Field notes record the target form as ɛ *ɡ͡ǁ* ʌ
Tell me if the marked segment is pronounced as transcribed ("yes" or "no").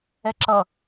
no